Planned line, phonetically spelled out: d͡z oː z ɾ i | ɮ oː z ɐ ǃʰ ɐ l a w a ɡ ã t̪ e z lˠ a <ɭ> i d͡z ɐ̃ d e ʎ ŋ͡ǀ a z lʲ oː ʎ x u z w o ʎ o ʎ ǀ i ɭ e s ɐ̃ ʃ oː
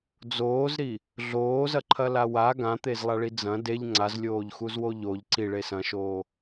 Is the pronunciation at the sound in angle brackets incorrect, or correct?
correct